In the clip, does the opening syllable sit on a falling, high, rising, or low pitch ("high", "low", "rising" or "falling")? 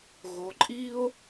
rising